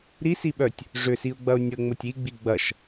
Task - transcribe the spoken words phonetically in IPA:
ɾ i s i ɓ œ tʲ | ʐ ʏ s i ʊ̯ ɡ͡b ɐ ʊ̯ nʲ ə ŋ͡m ʊ tʲ i ɡ͡b i ɡ͡b ɐ ʃ

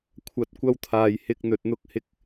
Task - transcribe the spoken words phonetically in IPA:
kʷʰ ɐ˨˥ t̚ kʷ ɐ˧ w t̪ʰ aː˨ j h ɪ˧ k̚ n̪ ɵ˧ t̚ n̪ ʊ˥ k̚ h ɪ˥ k̚

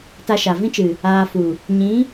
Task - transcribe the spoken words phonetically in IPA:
t a˧ ʃ a˨ v ĩ˦ t͡ʃ ɨ˨ | aː˧ f u˨ | ɲ ĩ˨˦

